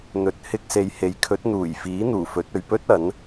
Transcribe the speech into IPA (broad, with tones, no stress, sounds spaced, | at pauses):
n̪ ɵ˨˥ t̚ h ɪ˧ k̚ s e˨ j h e˨˥ j kʰ ɵ˨˥ t̚ n̪ uː˨˩ j f iː˨˥ n̪ uː˨˩ f ɵ˨˥ t̚ ɵ˨ ɥ p ɵ˥ t̚ ɐ˨˥ n